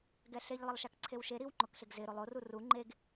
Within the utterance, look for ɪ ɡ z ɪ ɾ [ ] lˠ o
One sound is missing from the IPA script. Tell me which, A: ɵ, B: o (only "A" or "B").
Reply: B